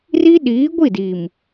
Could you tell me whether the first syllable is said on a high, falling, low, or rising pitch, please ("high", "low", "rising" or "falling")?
high